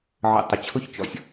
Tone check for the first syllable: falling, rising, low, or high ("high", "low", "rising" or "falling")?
low